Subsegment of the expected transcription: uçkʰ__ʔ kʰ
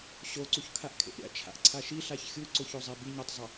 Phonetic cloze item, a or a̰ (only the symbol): a